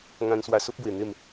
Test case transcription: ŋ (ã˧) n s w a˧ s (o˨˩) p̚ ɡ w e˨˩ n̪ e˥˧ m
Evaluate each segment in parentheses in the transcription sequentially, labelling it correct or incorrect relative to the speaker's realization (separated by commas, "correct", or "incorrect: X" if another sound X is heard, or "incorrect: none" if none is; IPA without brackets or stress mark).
correct, incorrect: o˦